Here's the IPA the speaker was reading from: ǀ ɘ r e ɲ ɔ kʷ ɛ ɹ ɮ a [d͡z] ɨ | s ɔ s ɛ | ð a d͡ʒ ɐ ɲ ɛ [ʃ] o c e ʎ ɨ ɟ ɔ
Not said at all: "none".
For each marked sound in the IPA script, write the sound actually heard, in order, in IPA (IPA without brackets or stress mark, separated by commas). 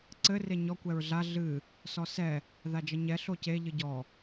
ɮ, ɬ